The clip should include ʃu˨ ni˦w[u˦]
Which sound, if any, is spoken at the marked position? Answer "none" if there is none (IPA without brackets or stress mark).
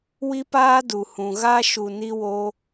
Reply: o˦